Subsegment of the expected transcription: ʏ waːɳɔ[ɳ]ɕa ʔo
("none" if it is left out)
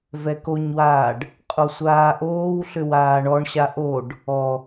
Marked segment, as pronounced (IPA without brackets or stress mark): ɳ